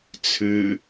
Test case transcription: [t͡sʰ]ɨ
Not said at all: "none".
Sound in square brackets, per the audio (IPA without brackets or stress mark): t͡sʰ